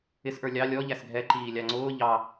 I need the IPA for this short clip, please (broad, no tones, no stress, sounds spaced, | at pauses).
ɪ s ʔ ə˞ lʲ ɑ lʲ ɔ ʎ æ s ɡʱ ɛ ǃ iː lʲ ɑ ŋ͡ǀ ʊː ʎ ɑ